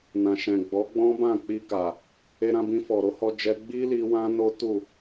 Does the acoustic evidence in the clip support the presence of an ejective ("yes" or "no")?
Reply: no